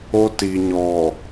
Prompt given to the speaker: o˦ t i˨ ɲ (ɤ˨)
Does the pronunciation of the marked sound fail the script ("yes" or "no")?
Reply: yes